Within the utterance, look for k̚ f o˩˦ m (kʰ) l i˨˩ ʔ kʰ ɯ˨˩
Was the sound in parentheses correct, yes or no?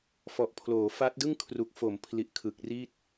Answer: no